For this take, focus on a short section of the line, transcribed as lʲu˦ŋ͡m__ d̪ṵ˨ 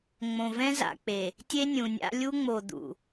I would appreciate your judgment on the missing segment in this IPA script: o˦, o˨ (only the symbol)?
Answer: o˨